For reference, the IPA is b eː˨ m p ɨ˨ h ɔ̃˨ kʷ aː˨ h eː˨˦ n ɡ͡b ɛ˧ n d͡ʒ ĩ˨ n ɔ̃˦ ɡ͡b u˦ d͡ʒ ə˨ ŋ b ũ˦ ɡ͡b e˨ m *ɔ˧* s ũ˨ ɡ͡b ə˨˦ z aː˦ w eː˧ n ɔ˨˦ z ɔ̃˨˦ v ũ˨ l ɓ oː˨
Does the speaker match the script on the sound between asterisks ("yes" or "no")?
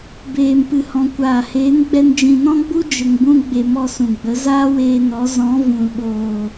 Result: yes